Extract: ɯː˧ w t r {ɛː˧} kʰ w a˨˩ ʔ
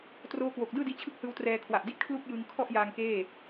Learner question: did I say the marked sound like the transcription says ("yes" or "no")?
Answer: yes